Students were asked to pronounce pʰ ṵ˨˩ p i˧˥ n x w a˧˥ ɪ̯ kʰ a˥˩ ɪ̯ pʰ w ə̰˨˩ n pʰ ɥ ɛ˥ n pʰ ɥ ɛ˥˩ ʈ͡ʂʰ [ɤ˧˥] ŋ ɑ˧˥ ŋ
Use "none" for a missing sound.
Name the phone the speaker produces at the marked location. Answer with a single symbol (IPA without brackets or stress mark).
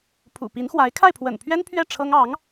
ɤ˥